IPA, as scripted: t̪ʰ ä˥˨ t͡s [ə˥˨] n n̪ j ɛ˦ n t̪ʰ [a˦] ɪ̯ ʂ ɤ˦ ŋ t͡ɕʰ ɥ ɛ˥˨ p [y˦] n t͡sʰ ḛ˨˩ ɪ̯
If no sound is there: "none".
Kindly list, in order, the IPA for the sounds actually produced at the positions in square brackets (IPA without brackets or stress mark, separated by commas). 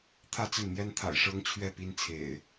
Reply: ə˥˨, a̰˨˩, i˦